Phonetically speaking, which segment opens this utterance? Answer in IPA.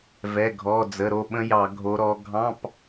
v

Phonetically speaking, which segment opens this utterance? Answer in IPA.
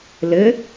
l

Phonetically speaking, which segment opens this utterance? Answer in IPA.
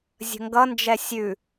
zʲ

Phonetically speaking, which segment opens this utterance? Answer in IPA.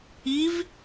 i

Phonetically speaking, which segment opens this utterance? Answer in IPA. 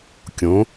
kʲ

